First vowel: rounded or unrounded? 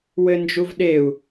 unrounded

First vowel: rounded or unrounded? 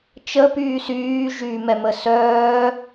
unrounded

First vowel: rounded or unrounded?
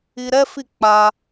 unrounded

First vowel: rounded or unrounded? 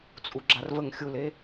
rounded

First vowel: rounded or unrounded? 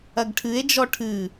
unrounded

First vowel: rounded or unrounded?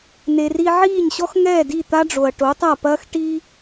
unrounded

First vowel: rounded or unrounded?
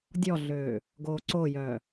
rounded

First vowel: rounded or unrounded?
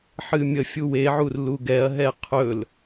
unrounded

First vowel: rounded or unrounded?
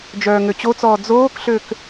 rounded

